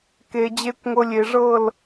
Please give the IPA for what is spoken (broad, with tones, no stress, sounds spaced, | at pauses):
k e˨ d͡ʑ e˧ kʷ ŋʷ ɤ˧ lʲ e˨ ʐ ɤ˦˨ l